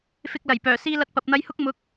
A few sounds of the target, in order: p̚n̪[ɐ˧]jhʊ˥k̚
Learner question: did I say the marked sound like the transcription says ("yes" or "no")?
yes